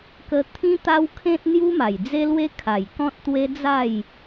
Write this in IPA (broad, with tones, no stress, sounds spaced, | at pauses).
k ə˧ t̪ʰ ĩ˦ t̪ a˦ w kʰ ẽ˦ t̚ n̪ j u˦ m a˨˩ j d͡z e˦ l w e˦ kʰ a˨˩ j k ɔ̃˦ t̚ t̪ w e˦ d͡z a˥˧ j